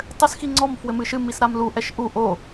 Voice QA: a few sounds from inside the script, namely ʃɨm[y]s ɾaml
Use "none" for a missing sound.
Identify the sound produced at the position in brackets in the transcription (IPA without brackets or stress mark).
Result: i